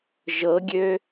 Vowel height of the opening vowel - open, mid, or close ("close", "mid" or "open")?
mid